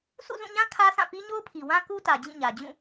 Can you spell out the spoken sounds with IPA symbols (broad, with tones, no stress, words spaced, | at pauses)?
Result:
sṵ˦˨zũ˦˨ɲã˦ kʰä˦sʰã˦˨ pi˦ɲo˦ʊ̯pʰi˨wã˦ ku˦tä˨ d͡ʑĩ˦˨ɲä˨ d͡ʑũ˦˨